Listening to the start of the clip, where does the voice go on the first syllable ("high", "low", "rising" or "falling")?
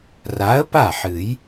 rising